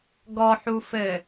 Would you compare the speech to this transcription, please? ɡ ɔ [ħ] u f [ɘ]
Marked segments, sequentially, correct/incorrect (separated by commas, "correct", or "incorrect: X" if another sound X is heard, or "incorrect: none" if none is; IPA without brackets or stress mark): correct, correct